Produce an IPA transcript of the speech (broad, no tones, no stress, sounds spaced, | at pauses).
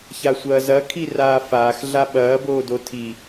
ç a sʷ ɐː z ɐ kʰ i r aː f aː x ɮ a ɓ ɐː b oː d o tʰ i